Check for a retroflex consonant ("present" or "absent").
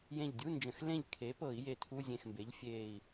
absent